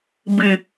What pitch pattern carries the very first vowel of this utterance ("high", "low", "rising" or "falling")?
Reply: low